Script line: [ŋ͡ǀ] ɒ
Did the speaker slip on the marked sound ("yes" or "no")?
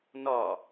yes